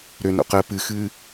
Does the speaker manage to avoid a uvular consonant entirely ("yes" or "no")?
no